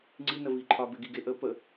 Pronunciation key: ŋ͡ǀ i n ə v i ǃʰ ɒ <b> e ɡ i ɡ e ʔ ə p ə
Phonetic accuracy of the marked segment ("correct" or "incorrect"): correct